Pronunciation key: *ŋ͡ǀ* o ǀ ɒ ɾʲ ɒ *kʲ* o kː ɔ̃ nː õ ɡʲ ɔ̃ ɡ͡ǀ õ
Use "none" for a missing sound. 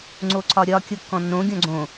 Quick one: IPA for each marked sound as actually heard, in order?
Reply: ŋ͡ǀ, kʲ

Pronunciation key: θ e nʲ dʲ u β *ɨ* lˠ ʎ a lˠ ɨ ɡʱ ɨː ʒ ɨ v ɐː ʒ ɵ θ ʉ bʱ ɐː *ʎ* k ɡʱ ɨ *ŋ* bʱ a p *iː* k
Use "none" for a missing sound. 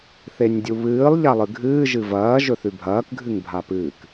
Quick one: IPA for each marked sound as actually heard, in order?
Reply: ɨː, none, ŋ, ɨː

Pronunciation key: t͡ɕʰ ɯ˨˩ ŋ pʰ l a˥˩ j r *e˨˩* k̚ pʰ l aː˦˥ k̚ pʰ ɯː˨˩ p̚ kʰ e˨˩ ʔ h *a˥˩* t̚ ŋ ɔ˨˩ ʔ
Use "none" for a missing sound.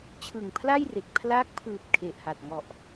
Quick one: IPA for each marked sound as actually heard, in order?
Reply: e˨˩, a˨˩

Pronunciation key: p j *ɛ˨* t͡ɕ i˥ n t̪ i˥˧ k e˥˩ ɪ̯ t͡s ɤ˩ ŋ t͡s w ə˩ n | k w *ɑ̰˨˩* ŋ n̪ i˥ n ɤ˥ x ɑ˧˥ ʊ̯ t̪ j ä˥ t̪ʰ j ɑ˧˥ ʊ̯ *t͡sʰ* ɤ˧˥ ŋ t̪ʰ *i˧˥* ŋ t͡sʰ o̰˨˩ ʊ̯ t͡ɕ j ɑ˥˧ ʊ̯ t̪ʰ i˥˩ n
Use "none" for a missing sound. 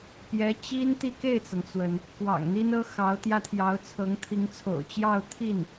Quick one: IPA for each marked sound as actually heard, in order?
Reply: ɛ˧˥, ɑ̰˨˩, t͡sʰ, i˧˥

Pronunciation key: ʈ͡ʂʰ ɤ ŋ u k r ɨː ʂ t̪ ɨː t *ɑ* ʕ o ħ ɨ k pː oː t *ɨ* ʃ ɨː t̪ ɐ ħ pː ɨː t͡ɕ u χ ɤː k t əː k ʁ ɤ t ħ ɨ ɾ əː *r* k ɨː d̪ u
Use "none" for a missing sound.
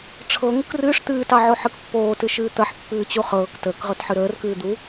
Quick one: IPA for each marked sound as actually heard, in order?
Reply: ɑ, ɨ, r

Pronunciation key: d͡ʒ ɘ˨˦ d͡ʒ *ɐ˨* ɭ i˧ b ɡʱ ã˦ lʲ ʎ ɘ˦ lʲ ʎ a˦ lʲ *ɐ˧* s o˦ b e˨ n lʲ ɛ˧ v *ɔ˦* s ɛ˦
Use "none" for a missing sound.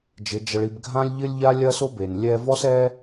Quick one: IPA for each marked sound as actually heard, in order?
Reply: ɐ˧, ɐ˦, ɔ˦

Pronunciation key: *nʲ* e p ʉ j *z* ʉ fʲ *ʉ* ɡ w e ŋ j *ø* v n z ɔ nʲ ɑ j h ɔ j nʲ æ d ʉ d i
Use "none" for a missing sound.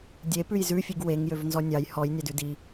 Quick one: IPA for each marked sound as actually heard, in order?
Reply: dʲ, z, ʉ, ø

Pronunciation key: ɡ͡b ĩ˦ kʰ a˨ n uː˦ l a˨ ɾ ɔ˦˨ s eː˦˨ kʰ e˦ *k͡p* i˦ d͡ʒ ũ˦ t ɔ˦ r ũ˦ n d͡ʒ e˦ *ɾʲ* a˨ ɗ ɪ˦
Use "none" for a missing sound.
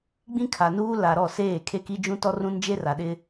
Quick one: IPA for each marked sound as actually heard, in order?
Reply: k, r

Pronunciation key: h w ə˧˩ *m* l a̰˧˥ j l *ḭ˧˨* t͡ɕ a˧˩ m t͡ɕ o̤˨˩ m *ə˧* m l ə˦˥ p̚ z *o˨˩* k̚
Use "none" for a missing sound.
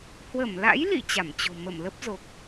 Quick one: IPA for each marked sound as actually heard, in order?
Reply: m, ḭ˧˨, ə˧˩, o˨˩

